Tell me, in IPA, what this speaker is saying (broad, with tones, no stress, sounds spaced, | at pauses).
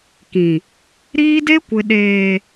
k ĩ˨ | ɾ iː˦ d e˦ kʷ ɪ˨ ɗ eː˨